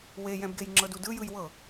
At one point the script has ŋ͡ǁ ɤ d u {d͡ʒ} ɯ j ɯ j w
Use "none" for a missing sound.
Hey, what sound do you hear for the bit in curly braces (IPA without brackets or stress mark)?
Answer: d